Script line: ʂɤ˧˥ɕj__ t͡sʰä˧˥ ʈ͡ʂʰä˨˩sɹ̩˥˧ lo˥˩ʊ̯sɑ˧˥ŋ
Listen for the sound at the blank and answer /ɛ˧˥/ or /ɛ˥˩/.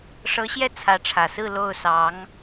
ɛ˥˩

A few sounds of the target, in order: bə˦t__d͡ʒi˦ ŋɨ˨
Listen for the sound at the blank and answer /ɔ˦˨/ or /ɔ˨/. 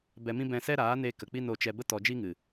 ɔ˨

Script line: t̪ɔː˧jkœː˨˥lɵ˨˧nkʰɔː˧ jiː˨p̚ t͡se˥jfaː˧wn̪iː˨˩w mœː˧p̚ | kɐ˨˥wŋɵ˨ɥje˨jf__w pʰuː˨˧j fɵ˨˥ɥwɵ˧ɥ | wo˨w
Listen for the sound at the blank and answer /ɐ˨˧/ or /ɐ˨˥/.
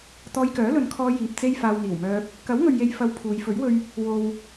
ɐ˨˧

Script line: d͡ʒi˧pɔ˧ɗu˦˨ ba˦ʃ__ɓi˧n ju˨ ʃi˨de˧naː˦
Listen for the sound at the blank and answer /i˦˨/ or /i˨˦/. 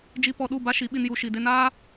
i˨˦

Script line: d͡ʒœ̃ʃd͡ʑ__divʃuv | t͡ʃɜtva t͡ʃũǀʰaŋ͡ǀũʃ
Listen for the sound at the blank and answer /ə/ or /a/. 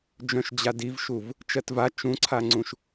a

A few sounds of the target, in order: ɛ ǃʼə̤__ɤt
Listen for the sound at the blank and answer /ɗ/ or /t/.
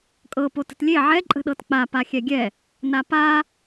ɗ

